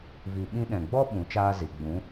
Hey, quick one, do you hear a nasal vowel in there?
yes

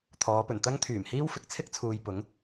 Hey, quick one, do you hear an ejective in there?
no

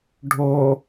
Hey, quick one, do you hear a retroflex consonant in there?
yes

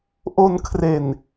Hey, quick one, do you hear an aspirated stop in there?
yes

